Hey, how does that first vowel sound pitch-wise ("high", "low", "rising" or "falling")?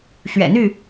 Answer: low